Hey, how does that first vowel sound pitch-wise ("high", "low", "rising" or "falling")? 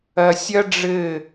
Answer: low